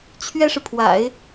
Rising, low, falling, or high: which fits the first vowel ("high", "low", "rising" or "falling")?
high